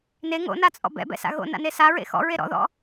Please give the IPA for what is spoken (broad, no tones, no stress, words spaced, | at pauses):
ne ŋo̰nat͡sʼɔ̰ bɛ̰bɛ̰sa̰ ɣo̰na̰ne saɹḛ xɔ̰ɹe ɾɔ̰ðɔ̰